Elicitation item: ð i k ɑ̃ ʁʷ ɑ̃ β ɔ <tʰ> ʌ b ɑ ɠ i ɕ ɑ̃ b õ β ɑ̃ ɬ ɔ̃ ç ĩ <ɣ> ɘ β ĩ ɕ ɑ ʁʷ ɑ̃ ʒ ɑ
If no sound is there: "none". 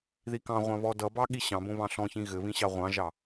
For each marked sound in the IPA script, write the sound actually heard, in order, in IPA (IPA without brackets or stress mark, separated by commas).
d, ɣ